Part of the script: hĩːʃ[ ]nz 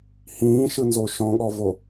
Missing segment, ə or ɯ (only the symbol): ɯ